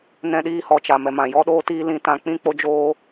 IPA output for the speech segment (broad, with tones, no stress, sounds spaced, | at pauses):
n ɛ̃˧ ɗ iː˧ h ɔ˨ t͡ʃ a˨ m ɛ˨ m ã˨ j ɔ˦ ɗ oː˦ t iː˦ l ĩ˧ t ã˧ k͡p ĩ˦ k͡p o˦ d͡ʒ oː˦